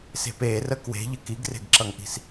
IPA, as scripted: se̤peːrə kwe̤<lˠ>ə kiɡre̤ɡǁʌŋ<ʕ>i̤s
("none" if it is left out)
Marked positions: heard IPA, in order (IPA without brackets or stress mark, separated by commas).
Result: ʎ, ʔ